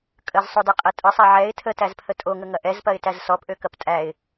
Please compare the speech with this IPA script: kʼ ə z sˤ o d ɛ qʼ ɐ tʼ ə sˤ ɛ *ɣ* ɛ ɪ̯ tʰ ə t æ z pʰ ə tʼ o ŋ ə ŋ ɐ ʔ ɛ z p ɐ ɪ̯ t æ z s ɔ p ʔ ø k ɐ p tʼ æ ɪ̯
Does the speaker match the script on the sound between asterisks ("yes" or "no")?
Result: no